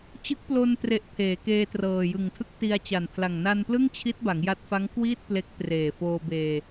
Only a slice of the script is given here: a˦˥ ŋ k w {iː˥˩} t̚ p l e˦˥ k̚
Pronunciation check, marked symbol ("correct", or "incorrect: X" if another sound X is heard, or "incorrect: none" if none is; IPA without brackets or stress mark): correct